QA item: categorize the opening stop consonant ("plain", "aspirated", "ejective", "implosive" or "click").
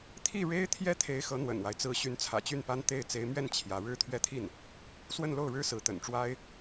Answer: aspirated